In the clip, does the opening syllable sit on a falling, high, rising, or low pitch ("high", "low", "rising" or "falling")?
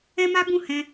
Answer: high